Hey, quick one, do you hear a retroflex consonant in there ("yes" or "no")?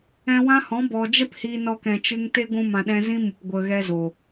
no